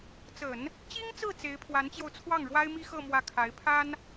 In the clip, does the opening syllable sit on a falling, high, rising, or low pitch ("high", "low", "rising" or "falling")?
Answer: low